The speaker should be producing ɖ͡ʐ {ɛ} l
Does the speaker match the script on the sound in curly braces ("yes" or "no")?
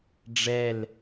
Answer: yes